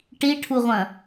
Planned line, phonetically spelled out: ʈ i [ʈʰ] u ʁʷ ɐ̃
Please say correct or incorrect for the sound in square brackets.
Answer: correct